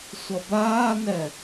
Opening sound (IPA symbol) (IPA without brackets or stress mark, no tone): sʷ